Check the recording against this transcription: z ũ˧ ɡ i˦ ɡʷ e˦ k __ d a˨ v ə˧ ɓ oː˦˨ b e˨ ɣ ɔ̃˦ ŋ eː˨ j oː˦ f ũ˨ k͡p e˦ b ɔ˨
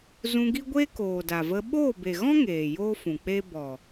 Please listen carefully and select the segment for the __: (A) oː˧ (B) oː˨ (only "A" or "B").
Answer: B